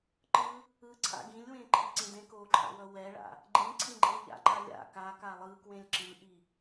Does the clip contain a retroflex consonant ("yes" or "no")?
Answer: yes